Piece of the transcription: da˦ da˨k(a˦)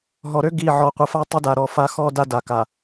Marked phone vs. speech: incorrect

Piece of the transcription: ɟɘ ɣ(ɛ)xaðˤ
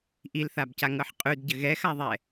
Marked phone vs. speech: correct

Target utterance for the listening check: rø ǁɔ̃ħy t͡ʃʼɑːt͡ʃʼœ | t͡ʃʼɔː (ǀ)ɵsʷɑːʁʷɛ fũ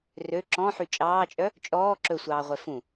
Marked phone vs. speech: incorrect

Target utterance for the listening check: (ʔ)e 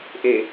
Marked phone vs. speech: correct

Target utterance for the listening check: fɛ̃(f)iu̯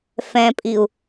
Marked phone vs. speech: incorrect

